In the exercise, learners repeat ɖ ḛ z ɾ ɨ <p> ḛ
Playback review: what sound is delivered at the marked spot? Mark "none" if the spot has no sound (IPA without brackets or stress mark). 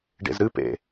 p